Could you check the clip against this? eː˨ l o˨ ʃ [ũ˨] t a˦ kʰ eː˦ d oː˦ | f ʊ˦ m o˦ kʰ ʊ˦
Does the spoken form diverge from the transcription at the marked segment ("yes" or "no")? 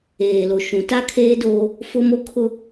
no